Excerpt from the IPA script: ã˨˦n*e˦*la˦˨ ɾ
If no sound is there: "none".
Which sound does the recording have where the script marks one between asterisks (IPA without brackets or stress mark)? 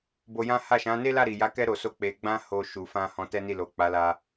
e˦